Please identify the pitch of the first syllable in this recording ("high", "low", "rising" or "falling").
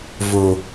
low